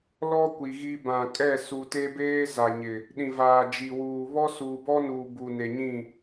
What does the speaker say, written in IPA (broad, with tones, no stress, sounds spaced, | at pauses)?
l ɔ˦ kʷ i˨ ɣ i˦ b ã˨ kʼ ɛ˦˨ s u˨ t e˦ b eː˦ z a˨ ɲ ɪ˨ | ɗ ĩ˨ v aː˨ d͡ʒ i˨ w uː˨ β ɔ˦ s uː˨ b ɔ˦ n uː˨ b u˨ n e˨ ɲ ĩ˦˨